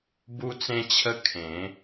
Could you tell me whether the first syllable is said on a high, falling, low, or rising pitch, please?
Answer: high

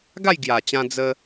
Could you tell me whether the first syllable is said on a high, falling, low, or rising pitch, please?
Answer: falling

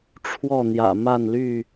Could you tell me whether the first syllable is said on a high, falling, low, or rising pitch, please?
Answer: falling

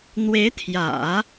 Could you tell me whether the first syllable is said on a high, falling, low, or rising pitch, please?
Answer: rising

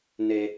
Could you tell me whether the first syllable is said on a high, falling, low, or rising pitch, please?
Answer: low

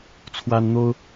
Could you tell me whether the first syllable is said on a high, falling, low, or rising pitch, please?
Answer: high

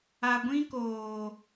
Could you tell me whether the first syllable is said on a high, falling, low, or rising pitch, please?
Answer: low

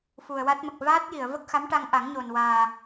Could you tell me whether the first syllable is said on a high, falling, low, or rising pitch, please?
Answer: low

